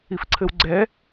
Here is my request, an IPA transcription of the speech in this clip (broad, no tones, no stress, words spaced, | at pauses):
ifǀʰɘwɡ͡ǀɛ